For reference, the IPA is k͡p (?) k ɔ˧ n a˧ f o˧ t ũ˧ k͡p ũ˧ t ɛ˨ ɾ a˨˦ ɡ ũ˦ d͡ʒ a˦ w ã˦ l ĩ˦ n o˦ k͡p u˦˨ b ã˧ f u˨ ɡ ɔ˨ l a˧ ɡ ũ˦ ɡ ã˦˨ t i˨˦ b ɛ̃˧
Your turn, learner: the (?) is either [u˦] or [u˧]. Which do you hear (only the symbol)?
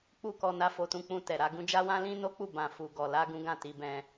u˦